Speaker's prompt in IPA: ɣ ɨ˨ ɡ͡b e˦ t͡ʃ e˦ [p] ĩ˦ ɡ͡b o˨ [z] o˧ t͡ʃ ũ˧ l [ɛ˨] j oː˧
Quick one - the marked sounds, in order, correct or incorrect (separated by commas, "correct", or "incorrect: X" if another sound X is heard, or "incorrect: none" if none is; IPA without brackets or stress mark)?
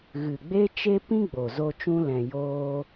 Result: correct, correct, incorrect: ɛ̃˨